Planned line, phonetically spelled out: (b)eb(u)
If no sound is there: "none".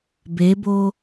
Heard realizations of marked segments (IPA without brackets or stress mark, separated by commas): b, o